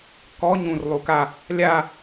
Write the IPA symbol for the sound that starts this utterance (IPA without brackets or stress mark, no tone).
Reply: k